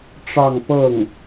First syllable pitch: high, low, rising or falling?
falling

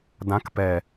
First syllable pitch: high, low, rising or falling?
rising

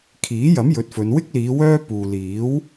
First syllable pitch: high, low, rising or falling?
rising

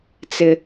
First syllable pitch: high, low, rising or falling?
high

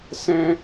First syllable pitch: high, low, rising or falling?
high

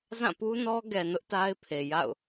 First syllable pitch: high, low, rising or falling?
falling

